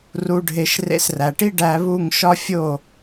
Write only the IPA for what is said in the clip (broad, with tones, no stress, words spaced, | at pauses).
ru˧ɖʱe˧ʃ rḛ˧sræ˩ʈi˥ ɖæ˧βu˥˩ŋ ʃɒ˥fʲo˥˩